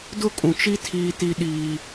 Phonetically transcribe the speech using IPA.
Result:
d ʊ˦ kʼ ũ˨ t͡ʃ i˦ tʰ iː˦ t i˦ ɗ iː˦

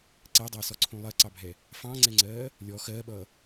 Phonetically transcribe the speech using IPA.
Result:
ǀ ɛ dˤ ʌː s ɔ ǀʰ ũ lˠ ɜ ǀ ɑ bʱ ɛ | f ɑ̃ ŋ͡ǀ ɛ ŋ͡ǀ ɜː | lʲ ɔ x ɜː ɓ ʌː

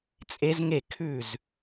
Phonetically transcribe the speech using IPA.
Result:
t͡sʼ e˦˥ z ŋ e˥˨ kʰ ʉ˥˨ z

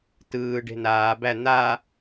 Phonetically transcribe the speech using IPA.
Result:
t ɯː ɖ e̤ n aː b æ n̪ a

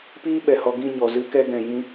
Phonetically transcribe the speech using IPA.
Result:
p iː˦ ɓ ɛ˨ h ɔ˧ ɡ ĩ˦˨ ɲ ɔ˨ z ɨ˧ k ɛ˧ ɡ ɛ̃˨ j ĩ˧

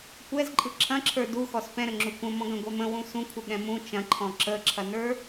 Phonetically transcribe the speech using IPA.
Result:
kʷ ɛ z ǃʼ ɯ ǁʰ ɐ̃ ǁʰ ə˞ d u x ɔ s p ɛ̃ ɾ ə ŋ͡ǁ u kʷ ə̃ m ɔ̃ ɡ ɐ̃ ɡʷ ɛ m ə̃ w ũ s ũ kʷʰ ɨ ɠ ɛ̃ m ũ t͡ʃ ɐ̃ ǃʰ ɔ̃ ǁ ə ǁʰ ɐ n ə˞

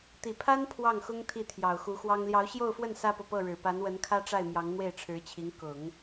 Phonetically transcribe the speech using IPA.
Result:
t̪ i˨˩ pʰ a˥ n pʰ w ɑ˥˩ ŋ x ʊ˥ ŋ t̪ʰ i˥˩ t̪ʰ j ɑ˨˩ ʊ̯ x u˧˥ x w ɑ˥ ŋ l j ɑ˧˥ ʊ̯ ɕ j o˥˧ ʊ̯ f w ə˥˩ n s ä˥ p ɤ˨ p ɤ˥˩ ɻ ɻ̩˨˩ p a˧˥ n w ə˧˥ n kʰ ä˥ ʈ͡ʂ a˥˩ ɪ̯ m j ɑ˧˥ ŋ n̪ w e˥˩ ɪ̯ ʈ͡ʂʰ ɻ̩˧˥ t͡ɕʰ i˧˥ ŋ k ʊ˨˩˦ ŋ

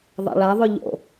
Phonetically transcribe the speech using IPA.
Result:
ðˤ a̰ ɭ a ðˤ ʉ ʎ o̰

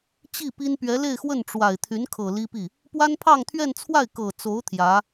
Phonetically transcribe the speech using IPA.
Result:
t͡ɕ i˥˩ p i˥ n p ɥ ɛ˧˥ l e˥˧ ɪ̯ x w ə˥˩ n ʈ͡ʂ w a˨˩ ɪ̯ t̪ʰ y˧˥ n kʰ ɤ˨˩ l i˥ p i˥˩ | p w a˥ n pʰ ɑ˥˧ ŋ t̪ʰ ɥ ɛ˥˧ n t͡sʰ w a˥˩ ɪ̯ k ɤ˨˩ t͡s o˧˥ ʊ̯ t̪ʰ j ä˧˥

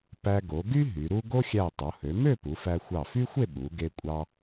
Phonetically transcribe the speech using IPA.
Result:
p æ˧ ɡ o˩˧ ɡ y˥ ɦ y˩˧ ɾ u˥ ɡ o˥ xʲ æ˧˩ tˤ o˩˧ h ø˩˧ m ø˥˧ p u˩˧ f æ˧ xʷ ɑ˧˩ f y˥ xʷ e˥˧ ɓ u˩˧ ɡ e˧ kʷʼ ɑ˧

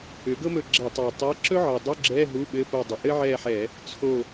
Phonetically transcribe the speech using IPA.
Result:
ʏ˩˥ ɡ ɤ˥ m ɵ˦˨ ɡ͡ǁ ɛ˧˩˧ tˤ a˨˩ tˤ e˧˥˧ ǁ ɵ˥ ʕ ɤ˨˩ dˤ u˧˥˧ ɡ͡ǁ ɛ˧˥˧ ɦ u˧˥˧ ɓ ɘ˧˥˧ p o˦˨ dˤ ʏ˨˩ ʔ ɘ˥ ʕ ɛ˦˨ ħ ɛ˧˩˧ | t͡sʰ o˦˨

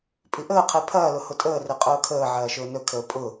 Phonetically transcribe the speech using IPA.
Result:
pʼ i ʔ əː qʰ e pʰ ɐː l ʊ h ʊ tʼ əː r e qʼ ʊː kʰ əː ʕ ɐː ʃ ʊː n ɵ kʰ əː pʼ ʊ

